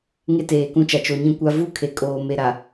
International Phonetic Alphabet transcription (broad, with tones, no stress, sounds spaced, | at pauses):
ŋ e˦ t eː˨ k ũ˦ t͡ʃ a˨ t͡ʃ o˨ ɲ ĩ˦ kʷ a˦ v u˦ kʰ e˨ kʼ oː˨ m e˨ ɾ a˨